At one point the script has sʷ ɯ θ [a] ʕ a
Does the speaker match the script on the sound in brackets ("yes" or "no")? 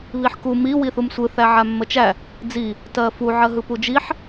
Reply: no